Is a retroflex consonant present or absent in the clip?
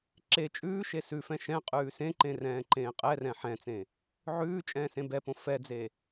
absent